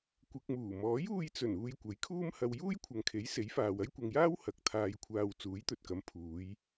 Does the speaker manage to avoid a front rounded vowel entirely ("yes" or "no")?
yes